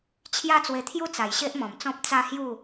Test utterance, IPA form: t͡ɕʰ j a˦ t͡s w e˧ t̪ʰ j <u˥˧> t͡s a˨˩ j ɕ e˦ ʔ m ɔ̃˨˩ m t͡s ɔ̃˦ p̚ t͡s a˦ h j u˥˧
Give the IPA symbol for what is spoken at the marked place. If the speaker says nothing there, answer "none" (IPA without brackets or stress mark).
u˥˧